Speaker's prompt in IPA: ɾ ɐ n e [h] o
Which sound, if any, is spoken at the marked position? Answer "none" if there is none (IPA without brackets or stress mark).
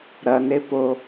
p